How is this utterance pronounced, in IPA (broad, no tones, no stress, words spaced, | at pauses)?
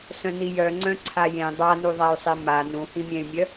sœ̃nijœŋ͡ǀœ̃ ǀʰajẽ dˤanuðˤay̯sˤe ma nũhĩmʲɛ̃y̯mʲœ